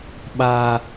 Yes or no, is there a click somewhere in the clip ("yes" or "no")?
no